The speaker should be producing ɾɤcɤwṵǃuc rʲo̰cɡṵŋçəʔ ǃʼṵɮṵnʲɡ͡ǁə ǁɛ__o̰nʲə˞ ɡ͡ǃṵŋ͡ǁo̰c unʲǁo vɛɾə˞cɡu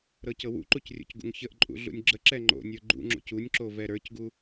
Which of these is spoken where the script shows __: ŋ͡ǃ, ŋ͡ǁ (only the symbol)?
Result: ŋ͡ǃ